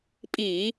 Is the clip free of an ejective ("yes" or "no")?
no